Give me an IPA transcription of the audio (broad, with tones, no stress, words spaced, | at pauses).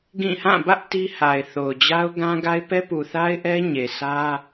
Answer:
ɡĩ˦˨ hã˦˨bä˦ʔ ti˦ha˨ɪ̯θo˨ʊ̯ d͡ʑa˦ʊ̯ɡã˦ɡa˦ɪ̯ pɛ˦pu˨θa˦ɪ̯ʔɛ˦ ɲe˨sʰä˦